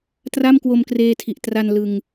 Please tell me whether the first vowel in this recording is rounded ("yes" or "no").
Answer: no